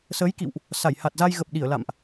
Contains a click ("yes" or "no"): no